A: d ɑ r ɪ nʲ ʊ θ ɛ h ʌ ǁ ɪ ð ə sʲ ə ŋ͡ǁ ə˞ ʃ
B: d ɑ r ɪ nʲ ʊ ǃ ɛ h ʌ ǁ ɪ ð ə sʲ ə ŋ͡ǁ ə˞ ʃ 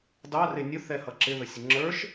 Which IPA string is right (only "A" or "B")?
A